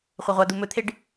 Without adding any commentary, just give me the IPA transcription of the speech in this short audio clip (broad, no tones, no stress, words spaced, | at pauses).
χʷɐʁʷad̪u mɵt̪ʰeɖ